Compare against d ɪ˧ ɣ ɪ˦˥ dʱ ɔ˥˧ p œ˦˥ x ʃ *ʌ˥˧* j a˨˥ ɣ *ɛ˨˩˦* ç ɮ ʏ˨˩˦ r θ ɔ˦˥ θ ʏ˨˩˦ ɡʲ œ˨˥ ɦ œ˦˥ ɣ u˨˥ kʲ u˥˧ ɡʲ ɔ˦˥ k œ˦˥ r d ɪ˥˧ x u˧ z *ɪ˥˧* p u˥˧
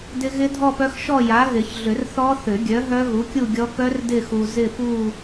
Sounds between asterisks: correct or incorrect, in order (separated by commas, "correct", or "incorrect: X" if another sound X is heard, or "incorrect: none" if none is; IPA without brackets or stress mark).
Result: incorrect: ɔ˥˧, incorrect: ɪ˨˩˦, correct